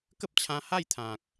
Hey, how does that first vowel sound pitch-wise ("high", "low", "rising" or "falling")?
high